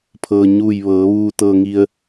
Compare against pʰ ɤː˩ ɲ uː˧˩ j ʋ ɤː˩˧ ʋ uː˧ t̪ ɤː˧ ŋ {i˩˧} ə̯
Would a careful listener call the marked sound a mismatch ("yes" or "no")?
yes